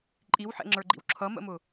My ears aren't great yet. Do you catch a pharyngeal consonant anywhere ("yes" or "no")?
yes